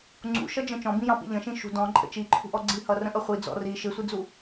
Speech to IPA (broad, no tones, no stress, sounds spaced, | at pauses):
ŋ͡ǀ ṵ ʃ ʌ d͡ʒ ə̃ t͡ʃ ɔ̃ b ĩ j ɑ̃ p ḭ ʎ ə̃ ʃ ĩ ʃ ṳ d ɔ̃ ǃʼ ə̰ t͡ʃ i ǃʰ ṳ ʔ ɔ ɡ͡ǀ i h ʌ r ə̃ ʔ ʌ χʷ i d͡z ɔ̰ r i ʃ ɪ sʷ i d͡z u